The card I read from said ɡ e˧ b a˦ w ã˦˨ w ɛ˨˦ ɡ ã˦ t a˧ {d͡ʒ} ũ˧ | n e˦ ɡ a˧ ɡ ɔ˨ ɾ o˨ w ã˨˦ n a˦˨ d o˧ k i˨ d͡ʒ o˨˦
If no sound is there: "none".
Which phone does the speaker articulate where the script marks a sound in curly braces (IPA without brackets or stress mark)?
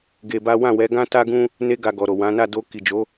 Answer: ɡ